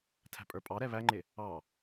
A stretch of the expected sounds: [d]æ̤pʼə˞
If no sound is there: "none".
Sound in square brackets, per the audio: tʰ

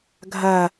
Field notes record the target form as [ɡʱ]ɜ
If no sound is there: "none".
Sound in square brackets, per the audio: ɡʱ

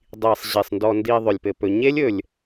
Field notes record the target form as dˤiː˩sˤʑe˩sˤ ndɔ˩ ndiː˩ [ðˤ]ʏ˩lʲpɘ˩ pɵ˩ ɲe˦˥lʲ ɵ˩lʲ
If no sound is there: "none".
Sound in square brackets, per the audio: ðˤ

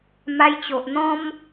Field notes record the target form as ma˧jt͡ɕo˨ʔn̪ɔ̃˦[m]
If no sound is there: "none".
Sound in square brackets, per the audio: m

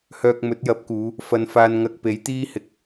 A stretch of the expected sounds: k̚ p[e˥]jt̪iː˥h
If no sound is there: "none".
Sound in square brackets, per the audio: e˨˥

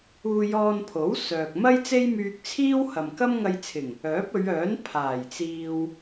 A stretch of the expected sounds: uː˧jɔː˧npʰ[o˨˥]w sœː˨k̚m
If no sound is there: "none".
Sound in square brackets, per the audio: o˨˥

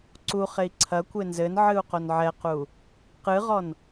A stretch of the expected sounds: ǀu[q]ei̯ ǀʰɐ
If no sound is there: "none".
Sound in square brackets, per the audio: χ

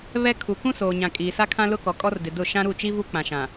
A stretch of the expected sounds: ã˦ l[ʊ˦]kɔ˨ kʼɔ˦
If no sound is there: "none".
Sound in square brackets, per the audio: ʊ˦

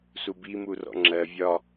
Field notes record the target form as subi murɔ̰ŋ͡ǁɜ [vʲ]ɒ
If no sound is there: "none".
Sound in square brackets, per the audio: vʲ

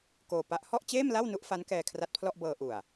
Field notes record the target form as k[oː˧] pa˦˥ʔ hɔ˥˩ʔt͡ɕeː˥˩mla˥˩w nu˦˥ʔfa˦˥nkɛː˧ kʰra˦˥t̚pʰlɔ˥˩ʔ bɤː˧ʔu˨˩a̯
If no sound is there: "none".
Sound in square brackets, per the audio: oː˧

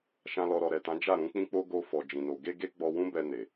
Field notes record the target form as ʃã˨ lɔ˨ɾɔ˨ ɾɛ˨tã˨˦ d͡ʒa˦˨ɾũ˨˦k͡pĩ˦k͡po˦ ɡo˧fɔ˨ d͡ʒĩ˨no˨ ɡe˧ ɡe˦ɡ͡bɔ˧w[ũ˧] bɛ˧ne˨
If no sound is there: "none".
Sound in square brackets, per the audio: ũ˦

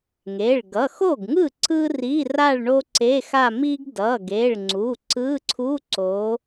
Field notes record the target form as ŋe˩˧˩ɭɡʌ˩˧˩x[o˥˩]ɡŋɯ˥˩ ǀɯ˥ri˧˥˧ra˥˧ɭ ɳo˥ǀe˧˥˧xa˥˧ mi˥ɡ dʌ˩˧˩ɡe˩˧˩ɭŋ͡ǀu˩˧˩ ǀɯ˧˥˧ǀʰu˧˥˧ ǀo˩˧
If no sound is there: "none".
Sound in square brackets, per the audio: o˥˩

